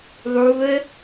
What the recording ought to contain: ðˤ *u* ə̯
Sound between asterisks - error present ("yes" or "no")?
no